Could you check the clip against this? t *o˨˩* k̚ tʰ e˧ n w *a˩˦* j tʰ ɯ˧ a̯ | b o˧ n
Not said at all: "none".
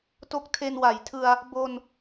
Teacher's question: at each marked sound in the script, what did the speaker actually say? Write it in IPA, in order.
o˦˥, a˩˦

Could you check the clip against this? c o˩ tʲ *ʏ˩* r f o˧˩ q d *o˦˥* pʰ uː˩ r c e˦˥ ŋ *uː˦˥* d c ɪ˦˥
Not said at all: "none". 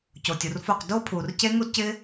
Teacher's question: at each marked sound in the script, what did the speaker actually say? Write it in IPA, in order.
u˩, o˦˥, u˦˥

